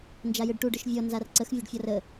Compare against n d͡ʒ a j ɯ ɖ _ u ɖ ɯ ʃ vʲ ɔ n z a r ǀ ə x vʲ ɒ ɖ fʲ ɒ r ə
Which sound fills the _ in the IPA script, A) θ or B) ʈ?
B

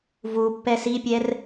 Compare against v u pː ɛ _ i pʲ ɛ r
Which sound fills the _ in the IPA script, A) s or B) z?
A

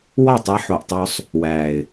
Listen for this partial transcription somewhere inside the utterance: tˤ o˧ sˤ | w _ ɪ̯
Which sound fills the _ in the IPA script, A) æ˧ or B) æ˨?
B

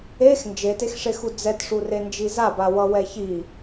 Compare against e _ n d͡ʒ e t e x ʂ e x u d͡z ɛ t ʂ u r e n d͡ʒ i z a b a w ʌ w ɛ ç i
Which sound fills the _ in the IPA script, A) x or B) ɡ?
A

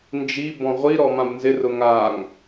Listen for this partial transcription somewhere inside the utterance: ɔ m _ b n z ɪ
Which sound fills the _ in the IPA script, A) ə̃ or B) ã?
B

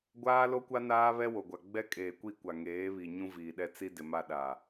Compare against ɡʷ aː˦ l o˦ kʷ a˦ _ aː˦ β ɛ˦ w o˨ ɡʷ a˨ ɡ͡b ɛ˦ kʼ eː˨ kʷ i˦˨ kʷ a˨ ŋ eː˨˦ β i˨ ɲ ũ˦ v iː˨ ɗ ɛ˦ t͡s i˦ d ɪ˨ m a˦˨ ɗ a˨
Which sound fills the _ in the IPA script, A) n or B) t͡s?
A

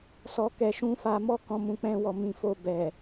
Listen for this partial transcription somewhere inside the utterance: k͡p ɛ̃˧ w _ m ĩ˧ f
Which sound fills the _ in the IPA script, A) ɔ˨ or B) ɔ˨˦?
A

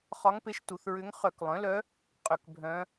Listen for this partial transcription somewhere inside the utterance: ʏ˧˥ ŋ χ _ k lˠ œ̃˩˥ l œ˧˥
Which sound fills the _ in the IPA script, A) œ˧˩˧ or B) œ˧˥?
A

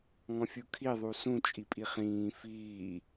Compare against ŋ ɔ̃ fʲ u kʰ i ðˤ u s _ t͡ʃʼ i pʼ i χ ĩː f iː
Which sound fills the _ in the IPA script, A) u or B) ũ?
B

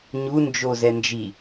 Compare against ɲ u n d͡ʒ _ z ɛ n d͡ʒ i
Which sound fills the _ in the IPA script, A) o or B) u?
A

